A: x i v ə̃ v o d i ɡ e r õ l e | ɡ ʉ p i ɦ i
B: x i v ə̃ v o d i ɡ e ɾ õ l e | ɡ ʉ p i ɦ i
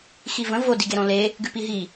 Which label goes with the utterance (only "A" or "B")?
B